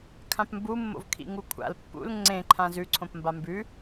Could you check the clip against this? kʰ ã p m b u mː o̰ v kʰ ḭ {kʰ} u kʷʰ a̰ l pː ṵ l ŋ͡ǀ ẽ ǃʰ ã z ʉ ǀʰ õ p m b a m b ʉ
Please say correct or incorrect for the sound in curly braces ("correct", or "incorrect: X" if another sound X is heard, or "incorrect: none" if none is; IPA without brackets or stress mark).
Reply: incorrect: ŋ